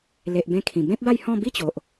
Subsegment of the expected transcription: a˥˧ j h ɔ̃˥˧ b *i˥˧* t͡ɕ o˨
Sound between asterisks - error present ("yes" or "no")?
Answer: no